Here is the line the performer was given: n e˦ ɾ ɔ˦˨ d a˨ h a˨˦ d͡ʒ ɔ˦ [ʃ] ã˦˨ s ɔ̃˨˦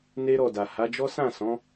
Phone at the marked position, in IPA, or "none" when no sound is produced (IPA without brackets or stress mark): s